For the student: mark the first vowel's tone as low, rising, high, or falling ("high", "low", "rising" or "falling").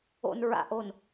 low